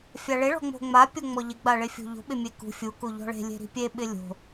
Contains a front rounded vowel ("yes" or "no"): no